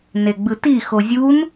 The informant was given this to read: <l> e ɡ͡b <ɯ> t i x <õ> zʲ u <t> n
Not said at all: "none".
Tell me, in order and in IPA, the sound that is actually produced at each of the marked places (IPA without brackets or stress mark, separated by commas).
n, ɯ, o, none